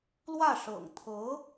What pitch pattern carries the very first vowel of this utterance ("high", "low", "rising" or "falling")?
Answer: falling